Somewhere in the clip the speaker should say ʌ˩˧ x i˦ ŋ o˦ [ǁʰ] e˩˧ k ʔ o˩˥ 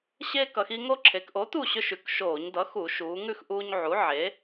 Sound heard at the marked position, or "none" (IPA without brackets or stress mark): ǁʰ